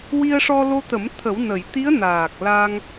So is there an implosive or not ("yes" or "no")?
no